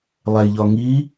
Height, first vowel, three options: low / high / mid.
low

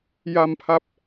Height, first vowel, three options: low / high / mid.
low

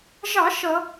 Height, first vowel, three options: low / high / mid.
low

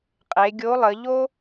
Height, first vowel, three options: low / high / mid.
mid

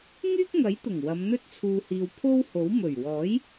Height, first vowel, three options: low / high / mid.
high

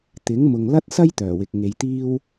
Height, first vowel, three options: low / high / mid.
high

